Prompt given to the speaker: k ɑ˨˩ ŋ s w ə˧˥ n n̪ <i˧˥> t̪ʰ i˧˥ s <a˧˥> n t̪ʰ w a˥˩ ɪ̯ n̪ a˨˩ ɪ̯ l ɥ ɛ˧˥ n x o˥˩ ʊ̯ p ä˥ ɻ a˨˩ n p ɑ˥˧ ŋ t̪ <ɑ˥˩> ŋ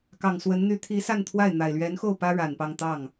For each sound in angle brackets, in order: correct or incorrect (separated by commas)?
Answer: incorrect, incorrect, correct